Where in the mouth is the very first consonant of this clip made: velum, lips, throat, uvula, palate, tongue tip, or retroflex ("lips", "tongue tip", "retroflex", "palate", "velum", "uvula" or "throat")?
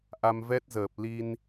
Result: throat